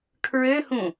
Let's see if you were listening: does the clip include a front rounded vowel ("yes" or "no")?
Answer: yes